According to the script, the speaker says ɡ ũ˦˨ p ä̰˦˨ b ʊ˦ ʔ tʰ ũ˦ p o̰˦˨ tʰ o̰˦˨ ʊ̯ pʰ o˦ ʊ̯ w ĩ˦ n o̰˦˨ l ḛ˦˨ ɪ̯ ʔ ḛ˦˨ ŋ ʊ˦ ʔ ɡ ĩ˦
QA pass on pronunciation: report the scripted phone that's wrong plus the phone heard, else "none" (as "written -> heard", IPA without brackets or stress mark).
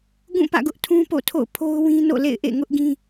b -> ɡ